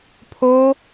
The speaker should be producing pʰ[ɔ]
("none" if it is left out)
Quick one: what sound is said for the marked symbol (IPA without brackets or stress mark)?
o